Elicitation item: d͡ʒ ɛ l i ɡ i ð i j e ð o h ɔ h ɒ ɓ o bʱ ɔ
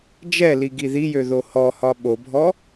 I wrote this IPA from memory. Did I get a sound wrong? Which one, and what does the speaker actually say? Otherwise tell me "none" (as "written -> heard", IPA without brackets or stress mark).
e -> ø